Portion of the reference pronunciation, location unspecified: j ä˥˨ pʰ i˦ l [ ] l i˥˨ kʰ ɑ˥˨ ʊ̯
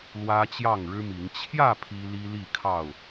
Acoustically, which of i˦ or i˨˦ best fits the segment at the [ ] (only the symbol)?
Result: i˦